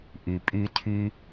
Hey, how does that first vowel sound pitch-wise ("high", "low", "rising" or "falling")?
low